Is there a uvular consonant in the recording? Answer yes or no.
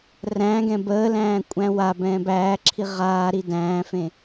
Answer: yes